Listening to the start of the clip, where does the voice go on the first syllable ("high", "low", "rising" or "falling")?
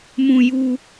high